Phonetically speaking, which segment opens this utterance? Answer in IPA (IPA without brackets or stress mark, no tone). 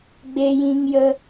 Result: ɡ͡b